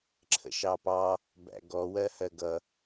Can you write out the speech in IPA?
ǁʰ ə̰ ʃ ɑ p ɑ | b æ̰ ɡ ɔ w ɜ h ɜ ɡ ʌ

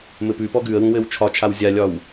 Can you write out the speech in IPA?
m ɘ p ʉ p ɔ ɡ ʉ ə̯ w ũ w ɘ w t͡ʃʰ ɒ t͡ʃʰ a w zʲ a lʲ ɒ w

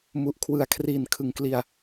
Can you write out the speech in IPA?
m u˨˩ ʔ kʰ w ɯ˨˩ a̯ kʰ r iː˨˩ n kʰ ɯ˨˩ ŋ k l i˧ a̯

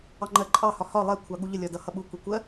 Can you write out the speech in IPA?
ɑ ŋ͡ǃ ɜ ǃʼ ɑ h ɒ h ɒ lˠ ɛ kʷʰ ɑ ɠ u ʎ ə lʲ ɒ d ʌ h ʌ ɓ u kʷ i kʷ ɜ

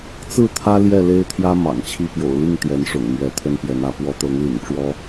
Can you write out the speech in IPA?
t͡s ɹ̩˥˨ t̪ʰ ä˦ l j ɛ˥˨ l e˦ ɪ̯ t̪ʰ j ä˦ m ɑ̰˨˩ ŋ t͡ɕʰ i˥˨ p j o̰˨˩ ʊ̯ l i˥˨ ŋ t̪ j ɛ˨˦ n ʂ ʊ̰˨˩ ŋ m ɥ ɛ˨˦ t̪ʰ ə˦ n p j ɛ˨˦ n ä˨˦ p w ɔ˨˦ t̪ ɤ˨˦ ŋ l ḭ˨˩ ŋ ʈ͡ʂ w ɔ˦

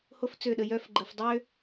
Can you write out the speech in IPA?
h o˦ f t͡s ø˦˨ ɗ ə˧ j œ˧ f ɡ͡ǃ ə˨ f dˤ ø˦

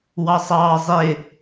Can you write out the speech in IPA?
w ɑ sˤ ɑː zˤ ɪ

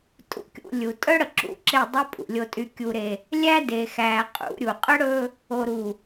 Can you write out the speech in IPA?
tʼ ṵ˨ kʲ ṵ˨ lʲ u˨ tʼ œ˦ ɽ ə˨ ǁ ṵ˦˨ ǁ e˦˨ dˤ ɵ˦ pʼ ṵ˨ lʲ o˦ tʼ y˦ kʲ u˦ ɾ e˦ | lʲ æ˦ d e˨ x æ˨ qʼ ṵ˨˦ ɾʲ u˨ qʼ ə˦ ɽ ɵ˦ | o˨ ɾ u˨

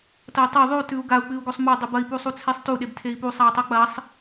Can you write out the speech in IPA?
t ɐ i̯ tˤ e ðˤ ʉ u̯ t ʉ u̯ ɡ a u̯ k͡p ɨ u̯ ɡ o sˤ m o dˤ ʉ b ɐ i̯ p u sˤ u t͡sʰ e sˤ t u ɗ e b tʰ e i̯ p u sˤ a u̯ tˤ o k͡p ɐ sˤ

